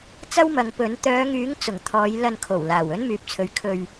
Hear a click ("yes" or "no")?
no